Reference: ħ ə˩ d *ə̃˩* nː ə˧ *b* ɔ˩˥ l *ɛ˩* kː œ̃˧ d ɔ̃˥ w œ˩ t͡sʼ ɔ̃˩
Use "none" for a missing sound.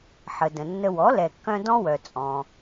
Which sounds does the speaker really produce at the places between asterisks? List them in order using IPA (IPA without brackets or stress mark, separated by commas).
ə̃˩, w, ɛ˩